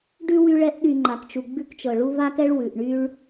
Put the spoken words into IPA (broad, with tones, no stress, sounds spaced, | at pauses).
ɖ ʉ˥ w y˦ ɭ ɛ˦ ʔ ɗ y˨ ŋ͡ǃ a˩ k t͡ʃ u˩ ɡ͡b ʉ˦ k t͡ʃ ɤ˩ ɭ u˦ v a˦ k ɛ˦ ɭ w ʉ˩ ʔ ɳ y˦ ɭ